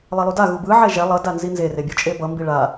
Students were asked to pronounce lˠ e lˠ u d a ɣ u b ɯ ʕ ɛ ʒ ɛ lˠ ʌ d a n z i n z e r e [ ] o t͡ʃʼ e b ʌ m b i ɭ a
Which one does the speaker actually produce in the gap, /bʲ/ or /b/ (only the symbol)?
bʲ